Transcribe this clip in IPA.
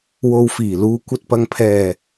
w o˧ w f iː˨˩ l uː˨ kʷ ɐ˧ t̚ p ɐ˨ ŋ pʰ ɛː˨˩

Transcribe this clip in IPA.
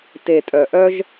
t e˨ tʼ œ˨ ʔ œ˦ ʒ

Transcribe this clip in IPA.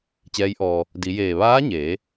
t͡ɕ ɛː˧˥ j ʔ ɔː˧ | d i˩˧ j eː˧˩ ʋ aː˧˥ ɲ eː˩˧

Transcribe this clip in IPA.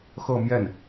x ɤ˥˧ m j ɛ˥˩ n

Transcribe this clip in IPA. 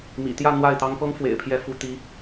m ḭ˨˩ t̪ j ä˥˧ n̪ w a˥˩ ɪ̯ t̪ ɑ˥ ŋ p ɤ˥ ŋ f w ḛ˨˩ ɪ̯ pʰ j ɛ˥˩ f u˥ t̪ i˧˥

